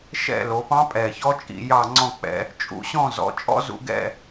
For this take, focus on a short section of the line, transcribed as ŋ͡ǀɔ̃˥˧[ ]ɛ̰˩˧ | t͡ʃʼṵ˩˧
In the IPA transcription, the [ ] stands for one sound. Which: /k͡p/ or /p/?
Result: k͡p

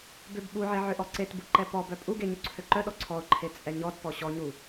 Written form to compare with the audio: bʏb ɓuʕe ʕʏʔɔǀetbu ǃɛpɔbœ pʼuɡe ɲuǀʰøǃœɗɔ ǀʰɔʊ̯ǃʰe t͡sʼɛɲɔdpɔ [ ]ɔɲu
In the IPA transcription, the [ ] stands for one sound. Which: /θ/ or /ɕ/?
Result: ɕ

